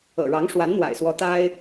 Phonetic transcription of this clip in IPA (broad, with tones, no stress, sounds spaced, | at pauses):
ɤ̰˨˩ ɻ ɑ˧˥ ŋ ʂ w a˧˥ n n̪ w a̰˨˩ ɪ̯ s w ɔ˧˥ t̪ a˥ ɪ̯